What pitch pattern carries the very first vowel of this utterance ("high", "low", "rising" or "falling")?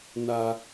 low